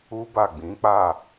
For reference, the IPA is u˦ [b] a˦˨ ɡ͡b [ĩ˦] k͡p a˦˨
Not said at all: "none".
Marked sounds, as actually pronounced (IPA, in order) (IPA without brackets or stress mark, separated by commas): b, ĩ˨˦